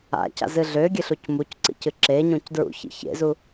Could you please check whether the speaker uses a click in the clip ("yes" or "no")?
yes